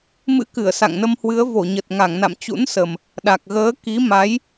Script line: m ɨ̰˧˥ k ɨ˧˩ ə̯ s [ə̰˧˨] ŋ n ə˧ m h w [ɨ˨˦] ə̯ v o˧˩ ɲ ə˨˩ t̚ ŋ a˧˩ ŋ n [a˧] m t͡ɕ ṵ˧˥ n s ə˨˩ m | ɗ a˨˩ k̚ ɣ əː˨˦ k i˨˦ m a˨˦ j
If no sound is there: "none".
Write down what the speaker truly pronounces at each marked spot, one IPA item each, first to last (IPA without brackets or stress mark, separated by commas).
a̰˧˨, ɨ˨˦, a̰˧˨